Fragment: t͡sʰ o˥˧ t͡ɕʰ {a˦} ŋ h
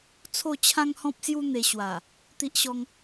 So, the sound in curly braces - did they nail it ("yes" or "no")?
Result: no